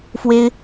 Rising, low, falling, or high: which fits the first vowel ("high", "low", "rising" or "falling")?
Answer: high